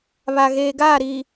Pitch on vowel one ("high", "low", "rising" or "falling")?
low